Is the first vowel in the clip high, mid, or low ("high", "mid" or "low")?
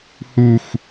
high